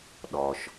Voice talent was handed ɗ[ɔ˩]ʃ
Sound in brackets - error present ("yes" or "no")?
no